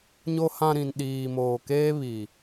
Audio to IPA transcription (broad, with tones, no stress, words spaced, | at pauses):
ɲo˨hã˨ ɾĩ˨nɗiː˨moː˨keː˦ βi˨